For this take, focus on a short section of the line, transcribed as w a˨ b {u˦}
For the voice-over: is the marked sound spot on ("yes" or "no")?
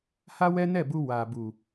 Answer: no